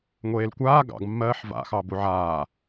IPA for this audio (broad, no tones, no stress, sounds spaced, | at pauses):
ŋʷ eː l kʷ aː ɡ ɑ̰ ɡ mː ɜː ħ v a̰ x ɑ b u ʕ aː